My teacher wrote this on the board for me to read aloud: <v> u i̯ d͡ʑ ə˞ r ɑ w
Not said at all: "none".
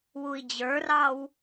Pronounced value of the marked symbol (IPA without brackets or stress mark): w